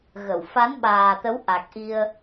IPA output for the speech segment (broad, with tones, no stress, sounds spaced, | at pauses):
ɣ ə˧˩ w f a˨˦ n ɓ aː˨˩ t̪ ə˨˦ w ʔ a˨˩ k̚ ʔ i˧ ə̯